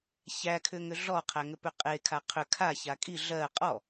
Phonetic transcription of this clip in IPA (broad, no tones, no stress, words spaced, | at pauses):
çækʰʏŋʏ ɮɔqʰæŋʏ pʏqʼe kʰaqʰʏ kʰa çakʼi ɮɜ qʼɔ